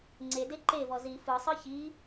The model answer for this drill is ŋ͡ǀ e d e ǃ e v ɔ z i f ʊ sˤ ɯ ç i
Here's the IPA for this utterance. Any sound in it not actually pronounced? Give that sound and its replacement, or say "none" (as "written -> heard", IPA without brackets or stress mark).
ʊ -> ɯ